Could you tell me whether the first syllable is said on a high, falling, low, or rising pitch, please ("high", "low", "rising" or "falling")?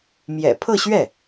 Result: low